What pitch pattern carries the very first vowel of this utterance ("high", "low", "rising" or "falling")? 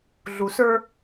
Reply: low